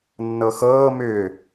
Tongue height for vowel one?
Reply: mid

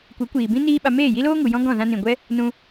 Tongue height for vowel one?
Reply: mid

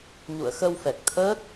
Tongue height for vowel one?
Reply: high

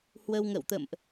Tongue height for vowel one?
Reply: mid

